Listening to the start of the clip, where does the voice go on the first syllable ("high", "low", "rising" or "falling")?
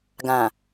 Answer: low